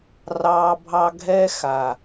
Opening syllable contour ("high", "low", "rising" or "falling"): high